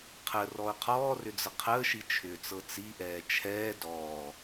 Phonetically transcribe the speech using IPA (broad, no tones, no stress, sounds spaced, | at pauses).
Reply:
qʰ ə r ɔ ʊ̯ qʰ ɔː r ʏ d͡z ə qʰ əː ʃ i t͡ʃʰ ʏː t͡s ɤ t͡s i ʔ ɛː t͡ʃʰ ɛː d ɔː